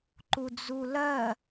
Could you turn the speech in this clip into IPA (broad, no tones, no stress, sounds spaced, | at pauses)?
ǃ u d͡z u l ɜ